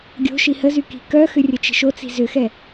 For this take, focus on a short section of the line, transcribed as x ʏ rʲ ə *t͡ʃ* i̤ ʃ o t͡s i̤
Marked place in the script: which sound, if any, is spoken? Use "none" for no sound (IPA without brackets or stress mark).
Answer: t͡ʃ